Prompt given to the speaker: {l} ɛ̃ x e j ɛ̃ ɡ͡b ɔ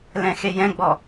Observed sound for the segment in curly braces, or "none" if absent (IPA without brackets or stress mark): l